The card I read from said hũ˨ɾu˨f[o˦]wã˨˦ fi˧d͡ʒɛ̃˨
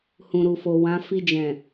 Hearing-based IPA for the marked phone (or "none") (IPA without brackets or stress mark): o˨